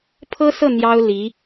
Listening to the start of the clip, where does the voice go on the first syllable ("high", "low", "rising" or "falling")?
high